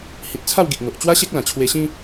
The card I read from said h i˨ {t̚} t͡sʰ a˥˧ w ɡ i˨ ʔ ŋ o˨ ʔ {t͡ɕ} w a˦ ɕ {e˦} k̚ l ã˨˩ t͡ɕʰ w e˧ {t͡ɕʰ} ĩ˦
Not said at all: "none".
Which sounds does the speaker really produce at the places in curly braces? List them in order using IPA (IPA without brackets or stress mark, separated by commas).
t̚, t͡ɕ, e˦, ɕ